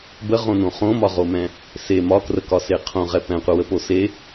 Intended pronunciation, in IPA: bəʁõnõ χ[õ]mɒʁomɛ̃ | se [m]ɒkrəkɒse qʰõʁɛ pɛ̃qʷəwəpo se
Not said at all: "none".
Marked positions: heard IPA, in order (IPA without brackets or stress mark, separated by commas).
õ, m